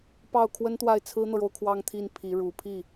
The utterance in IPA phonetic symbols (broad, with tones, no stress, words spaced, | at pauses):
pɑ˥˩ʊ̯ kʰwə˥nt̪wa˥˩ɪ̯ t͡sʰɹ̩˥n̪ɤ˨ɻo˥˧ʊ̯ kʰwɑ˥˧ŋt̪ʰi˥˩n pʰi˧˥ ɻu˨˩pʰi˥˩